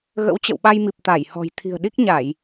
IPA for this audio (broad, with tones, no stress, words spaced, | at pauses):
ɣə̰˧˥wt͡ɕə̰˧˨wɓa˧jmi˨˩p̚ t̪a˧˩jhɔ̤˨˩j t̪ʰi̤˨˩ə̯ɗi˦˥k̚ɲa˧˩˨j